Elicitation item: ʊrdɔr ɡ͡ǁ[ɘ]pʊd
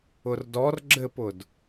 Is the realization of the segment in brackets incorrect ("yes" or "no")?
no